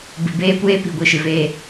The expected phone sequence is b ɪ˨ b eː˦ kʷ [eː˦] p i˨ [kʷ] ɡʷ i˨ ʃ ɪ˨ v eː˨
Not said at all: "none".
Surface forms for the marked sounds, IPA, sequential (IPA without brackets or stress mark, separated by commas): eː˦, none